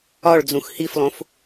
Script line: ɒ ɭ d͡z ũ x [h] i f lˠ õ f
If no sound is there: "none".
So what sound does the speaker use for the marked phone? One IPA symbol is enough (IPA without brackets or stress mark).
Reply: h